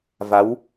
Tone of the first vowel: rising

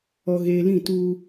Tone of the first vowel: low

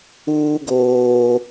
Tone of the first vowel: high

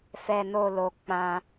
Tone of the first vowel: low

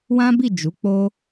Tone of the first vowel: high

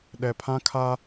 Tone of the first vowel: low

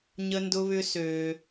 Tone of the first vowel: high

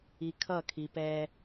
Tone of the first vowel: low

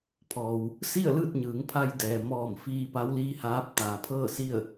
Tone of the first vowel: low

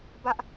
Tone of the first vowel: high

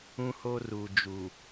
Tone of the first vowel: high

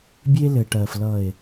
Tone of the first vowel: high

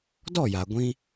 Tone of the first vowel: falling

